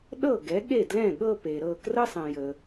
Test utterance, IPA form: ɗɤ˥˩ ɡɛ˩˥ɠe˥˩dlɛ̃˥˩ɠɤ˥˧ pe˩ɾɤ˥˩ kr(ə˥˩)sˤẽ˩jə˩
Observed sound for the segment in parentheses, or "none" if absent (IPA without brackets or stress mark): ə˥